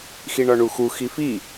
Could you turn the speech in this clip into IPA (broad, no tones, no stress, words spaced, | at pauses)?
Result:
xiɳɒɳuxu xifi